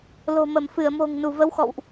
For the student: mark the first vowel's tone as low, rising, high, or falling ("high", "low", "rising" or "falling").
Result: low